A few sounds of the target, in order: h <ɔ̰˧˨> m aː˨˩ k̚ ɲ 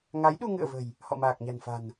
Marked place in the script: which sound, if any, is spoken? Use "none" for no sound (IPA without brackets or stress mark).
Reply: ɔ̰˧˨